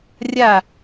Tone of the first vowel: falling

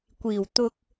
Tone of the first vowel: low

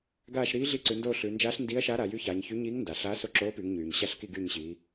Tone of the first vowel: falling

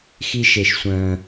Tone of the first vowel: high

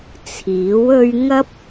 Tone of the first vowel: rising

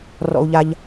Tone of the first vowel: low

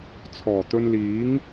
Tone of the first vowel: low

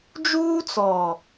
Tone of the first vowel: high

